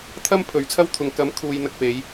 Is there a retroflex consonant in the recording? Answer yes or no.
no